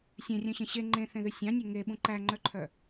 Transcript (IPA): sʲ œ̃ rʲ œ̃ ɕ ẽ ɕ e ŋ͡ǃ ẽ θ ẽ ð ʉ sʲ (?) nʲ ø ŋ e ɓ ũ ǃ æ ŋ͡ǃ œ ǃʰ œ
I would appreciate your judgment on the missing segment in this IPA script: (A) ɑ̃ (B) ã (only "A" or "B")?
A